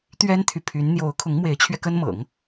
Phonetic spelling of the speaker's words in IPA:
t̪ɥɛ˥nt̪ʰy˨pʰy˧˥n n̪jo˧˥ʊ̯kʰʊ˧˥ŋmwe˧˥ɪ̯t͡ɕʰɥɛ˧ kə˥nmɤ̰˨˩˦ŋ

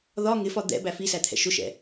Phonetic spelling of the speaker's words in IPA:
ðɒ ŋɪfɒ d̪ɛ̰ bæfisæt̪ʰɛ̰ ʃʊʃɛ̰

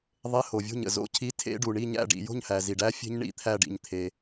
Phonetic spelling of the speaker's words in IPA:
ðˤe˧˥˧ ho˨vʲo̤˥˨ɲə̰˨ zo̰˧˥˧cʰi˧˥˧tʰḛ˦˥ɖu˨ ɳi˥˨ɲæ̰˥˨ɖḭ˨ jo̤˥˨ɲhæ˨ zi˨ɖæ˦˥fʲe̤˦˥ɲɳḭ˥˨ t̪ʰæ˥˨ɖḭ˨ɲ t̪ʰe˨

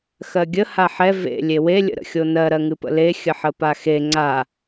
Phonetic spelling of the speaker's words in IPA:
xɜɡʲə haħɛ vḛ lʲewe lʲə̰ɾə̰xʲonɜ ɾɜŋɨpə̰le xʲəħəpaxe ŋ͡ǀa

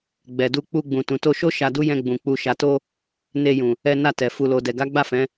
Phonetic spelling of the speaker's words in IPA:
ɡ͡bɛ˨du˧ k͡pu˧ ɡ͡bũ˨tũ˨to˧ʃo˦ ʃa˧du˦jɛ̃˧ɡ͡bũ˨ k͡pu˨ʃa˨to˧ | ne˧jũ˨ | ɛ˧na˧ tɛ˨ fu˨lo˨dɛ˨ɡa˨˦ ɡ͡ba˦˨fɛ̃˨˦

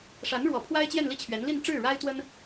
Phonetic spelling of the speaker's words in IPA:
ʂa˧˥nɻwɔ˨˩pʰwa˥ɪ̯ t͡ɕjɛ˥˧nli˥˩t͡ɕʰɥɛ˧˥nli˥˧n ʈ͡ʂɻ̩˥˩ɻa˥ɪ̯t̪wə˥n

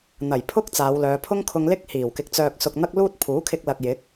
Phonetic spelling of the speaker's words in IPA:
n̪ɐ˨˩jpʰʊ˥k̚ t͡saː˨˧wlœː˨˧ pʰʊ˥ŋkʰʊ˧ŋlɪ˥k̚hiː˨˩w kɪ˨˥k̚t͡sœː˨k̚sʊ˨k̚ n̪ɐ˥k̚luː˥t̚ pʰuː˨˥kʰɪ˧k̚lɐ˨k̚ jɪ˨˥k̚

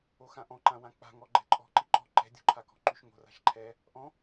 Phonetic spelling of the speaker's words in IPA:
oxãʔɔ̃ǃã wãk͡pa̤ŋɔ ɡ͡ǃɛ̤ǃʼɔ̤ ǃiǃɔ̤ ǃɛ̤dʲo̤ǃʰakɔ̤ ǃyʃŋo̤ ra̤ʃǃʰɛ | ʔɔ̃

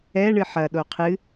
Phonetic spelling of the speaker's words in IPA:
ɛ ɳɨħɐ ɗoqʰɨ

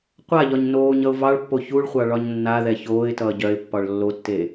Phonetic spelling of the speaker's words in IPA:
qʷaʎɒɲ noːɲ ʌʊ̯vɑɭpːo çuɭχʷɑ ɭɒɲnːaðɛ çoːɪ̯tʌː ɟœɪ̯pːɒɭ lːotːe

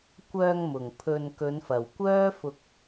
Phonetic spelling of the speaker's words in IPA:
kʷœː˧ŋmʊ˨˩ŋ pʰɵ˨nkɵ˨˧nfɐ˨˩w kʷœː˥fʊ˧k̚

